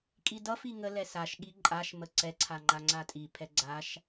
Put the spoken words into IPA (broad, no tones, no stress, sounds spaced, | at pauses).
kʼ i d ʌ f i ŋ ə l ɛ s a ʃ ɠ i ǃʼ a ʃ m ə ǀ ɛ ǀʰ a ŋ͡ǃ a ŋ͡ǀ a tʼ i pʰ ɛ ɡ͡ǀ a ʃ